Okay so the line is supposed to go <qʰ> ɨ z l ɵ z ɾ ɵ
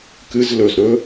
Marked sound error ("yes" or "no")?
yes